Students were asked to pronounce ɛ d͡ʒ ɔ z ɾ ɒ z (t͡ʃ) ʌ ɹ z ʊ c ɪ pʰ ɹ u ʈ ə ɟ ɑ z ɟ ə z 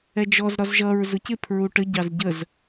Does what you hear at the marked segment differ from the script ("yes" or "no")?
yes